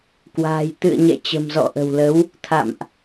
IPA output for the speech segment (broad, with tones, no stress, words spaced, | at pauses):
kwa̤ː˨˩j t̪ɨ̰˧˨ə̯ɲɛ̰˧˨t͡ɕə̤˨˩m zɔ̰˧˨ʔə̤˨˩wlə˨˦w | t̪ʰa̰˧˨mʔ